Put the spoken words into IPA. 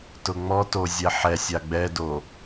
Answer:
t ʊ ŋ͡m ɔ t o zʲ ɛ ħ ɛ sʲ a ɡ͡b ɛ d o

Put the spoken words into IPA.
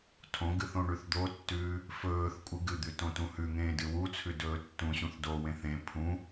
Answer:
tʰ õ ɡ ɨ θ õ ɳ ʉ θ d̪ o tː ʉː | f ɵː θ kʷʼ ɨ ɡ ɨ d̪ ʉ t õ t ũ h ʉ ŋ ẽː d ɨ w u t͡sʰ ʉ d ɵː tː ũ ɕ ũ θ d o w ẽ θ ẽ pʰ ũ

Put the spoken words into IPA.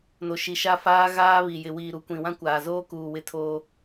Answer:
n o˨ ʃ i˨ ʃ a˦ f aː˦ ɣ aː˦ β i˨ j ɪ˨ w iː˨ ɾ u˨ kʷ ĩ˨ w ã˦ kʷ aː˨ z oː˦ k uː˨ w ɪ˦ tʰ oː˦

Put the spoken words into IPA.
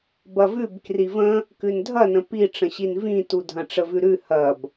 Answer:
b ɐ v ʉ b k r i v ə̃ | k ʉ n dʱ ɐ n ə̃ p i ʈ͡ʂ ə̃ ɕ i n v ĩ t u dʱ ɐ̃ ʈ͡ʂ ə v ʉ ɾ ʉ h ɐ b

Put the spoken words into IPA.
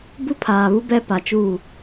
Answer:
b u˦ pʰ aː˨ β u˦ b ɛ˦ p a˨ t͡ʃ uː˦˨

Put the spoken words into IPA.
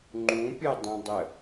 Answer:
ŋ͡ǃ ũ pʲ ɤ dˤ ũ dˤ ə

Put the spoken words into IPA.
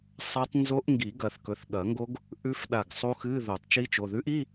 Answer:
sˤ a˦˥ tˤ n z o˦˥ ʔ ŋ ɡ i˨˩˦ ɡ ɐ˨˩˦ θ k ɵ˩˧˩ θ ɠ ɐ˨˩˦ ŋ ɡ o˦˥ ɡ | ʔ ʉ˦˥ f ɗ a˧˩ ɡ sˤ u˦˥ x ɨ˧˥˧ ð o˨˩˦ tˤ t͡ʃ i˦˥ t͡ʃ o˩˧˩ ð ʉ˦˥ ʔ i˧˥˧

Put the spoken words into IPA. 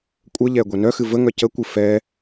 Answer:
kʷʼ ə ʎ ɛ ɡʷ ɛ n œ x ɨ v ə ŋ œ c ə kʷ ɨ f ɛ

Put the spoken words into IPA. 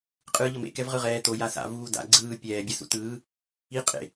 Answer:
qʼ ɯː ʎ ʌ m ḛ k ɛ v ʁ ɯ ʁ ɛː t o j a s a̰ v uː d a̰ ɡ͡ǀ ɯː pʲ ɛː bʲ ɛ s ṵ t ɯː | i qʼ ḛ

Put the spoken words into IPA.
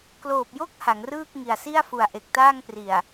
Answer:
k l oː˨˩ p̚ j o˥˩ k̚ h a˩˦ ŋ r ɯː˥˩ k̚ ŋ i˨˩ a̯ s i˥˩ a̯ f u˨˩ a̯ ʔ e˨˩ k̚ t aː˥˩ ŋ p r i˨˩ a̯

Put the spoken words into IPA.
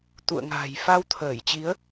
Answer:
t̪ ṵ˧˨ ə̯ ŋ a̤ː˨˩ j f a˧ w t̪ʰ əː˧˩ j t͡ɕ i˨˦ ə̯

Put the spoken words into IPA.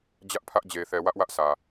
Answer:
d͡ʑ ä˦ ʔ pʰ ä˦ ʔ d͡ʑ e˨ θ ɛ˨ w ä˦ ʔ w ä˦ ʔ sʰ ä˨

